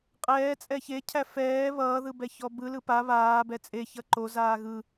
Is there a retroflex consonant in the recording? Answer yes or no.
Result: no